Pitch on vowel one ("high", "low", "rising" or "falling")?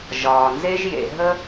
low